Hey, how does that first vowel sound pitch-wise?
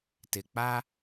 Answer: low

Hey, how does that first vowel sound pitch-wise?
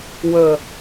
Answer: low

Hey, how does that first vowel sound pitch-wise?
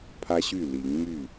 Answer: high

